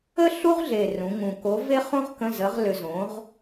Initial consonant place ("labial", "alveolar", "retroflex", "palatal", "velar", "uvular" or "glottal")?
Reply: alveolar